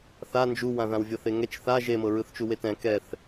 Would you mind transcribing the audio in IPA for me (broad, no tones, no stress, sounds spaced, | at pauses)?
θ a n d͡ʒ u w ã ð ã w vʲ ɤ θ e ŋ ɛ t͡ʃ θ a ʒ e m ɤ ɹ ɯ θ t͡ʃ u w e t ɛ̃ k ɛ θ